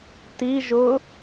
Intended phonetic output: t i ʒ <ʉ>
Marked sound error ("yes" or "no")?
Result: yes